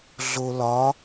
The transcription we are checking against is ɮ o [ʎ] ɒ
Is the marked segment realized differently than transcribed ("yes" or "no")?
yes